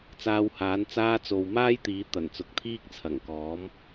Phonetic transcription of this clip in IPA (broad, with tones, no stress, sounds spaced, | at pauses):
t͡s aː˧ w h aː˨˥ n t͡s aː˧ t͡s o˨ w m aː˥ j t̪ iː˨˥ t̪ ɐ˨˩ n t͡s ʊ˨˥ k̚ t̪ʰ iː˥ k̚ t͡sʰ ɐ˨˩ ŋ k ɔː˨˥ m